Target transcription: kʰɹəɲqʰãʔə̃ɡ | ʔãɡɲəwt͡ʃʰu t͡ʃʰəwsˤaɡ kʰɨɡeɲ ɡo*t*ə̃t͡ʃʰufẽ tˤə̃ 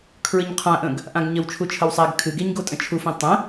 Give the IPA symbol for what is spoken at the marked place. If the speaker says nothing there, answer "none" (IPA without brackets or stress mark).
tʼ